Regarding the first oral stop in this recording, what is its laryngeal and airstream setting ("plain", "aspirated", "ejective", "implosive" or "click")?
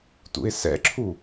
plain